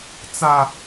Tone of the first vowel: high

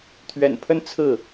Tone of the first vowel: low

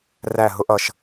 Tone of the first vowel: falling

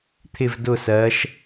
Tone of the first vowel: falling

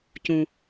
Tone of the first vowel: low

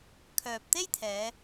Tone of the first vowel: low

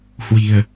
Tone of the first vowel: low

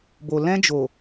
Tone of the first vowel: low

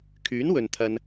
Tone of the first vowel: rising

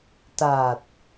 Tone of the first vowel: low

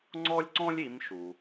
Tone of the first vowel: high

